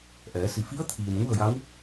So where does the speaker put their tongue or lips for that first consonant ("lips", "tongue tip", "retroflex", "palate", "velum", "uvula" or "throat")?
throat